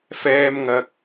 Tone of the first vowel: high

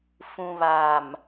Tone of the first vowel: low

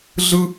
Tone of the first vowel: high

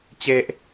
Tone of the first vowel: high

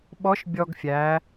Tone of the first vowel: rising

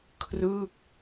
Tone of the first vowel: falling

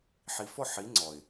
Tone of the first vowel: low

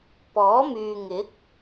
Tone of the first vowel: rising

